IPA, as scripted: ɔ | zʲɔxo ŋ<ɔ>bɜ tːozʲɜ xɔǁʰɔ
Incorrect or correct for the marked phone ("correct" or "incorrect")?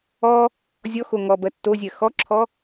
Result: correct